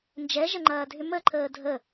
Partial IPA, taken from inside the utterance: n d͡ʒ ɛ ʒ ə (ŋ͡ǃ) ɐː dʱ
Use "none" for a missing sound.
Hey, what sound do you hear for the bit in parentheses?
ŋ͡ǃ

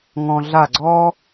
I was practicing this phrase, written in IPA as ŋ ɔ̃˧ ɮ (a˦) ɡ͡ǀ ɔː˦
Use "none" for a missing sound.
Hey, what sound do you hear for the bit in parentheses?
a˦˨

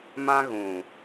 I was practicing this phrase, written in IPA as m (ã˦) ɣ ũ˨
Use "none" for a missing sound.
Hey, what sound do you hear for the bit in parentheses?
ã˦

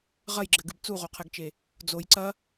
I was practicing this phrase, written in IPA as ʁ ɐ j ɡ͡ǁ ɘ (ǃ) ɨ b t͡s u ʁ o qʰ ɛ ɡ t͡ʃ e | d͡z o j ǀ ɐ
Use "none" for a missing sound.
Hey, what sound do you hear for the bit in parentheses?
ɡ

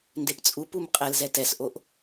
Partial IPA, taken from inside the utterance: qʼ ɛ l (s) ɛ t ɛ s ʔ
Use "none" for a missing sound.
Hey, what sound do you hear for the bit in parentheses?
z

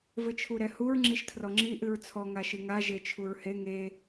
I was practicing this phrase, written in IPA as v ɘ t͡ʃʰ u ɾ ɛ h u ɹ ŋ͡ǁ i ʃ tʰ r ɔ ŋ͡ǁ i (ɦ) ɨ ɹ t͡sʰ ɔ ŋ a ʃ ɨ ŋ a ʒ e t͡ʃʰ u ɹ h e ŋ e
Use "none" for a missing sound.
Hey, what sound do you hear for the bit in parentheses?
ʔ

